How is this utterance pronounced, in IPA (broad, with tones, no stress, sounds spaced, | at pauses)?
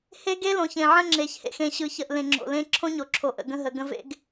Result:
h e˦ ɡ e˦ l õ˨ ç ẽ˨ ʕ ə̃˦ ŋ͡ǁ e˨ ç h ḛ˨ x ẽ˨ ɕ ɯ˨ ç ə˨ ʔ l ẽ˨ ŋ͡ǁ o̰˨ l ẽ˦ ǁʰ õ˦ ɲ o˨ ǁʰ o˨ ʔ ə̰˨ ɡ ə̃˦ ɦ ə˨ ɡ ə̃˦ v ḛ˦ ɡ